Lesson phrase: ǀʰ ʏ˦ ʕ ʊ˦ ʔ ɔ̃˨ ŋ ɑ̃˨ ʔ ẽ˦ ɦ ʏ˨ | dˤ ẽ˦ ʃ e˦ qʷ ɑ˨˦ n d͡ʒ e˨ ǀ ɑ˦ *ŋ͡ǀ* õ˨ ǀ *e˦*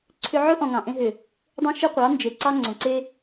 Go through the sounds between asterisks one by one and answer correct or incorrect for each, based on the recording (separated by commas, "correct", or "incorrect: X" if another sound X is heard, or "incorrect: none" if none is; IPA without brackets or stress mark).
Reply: correct, correct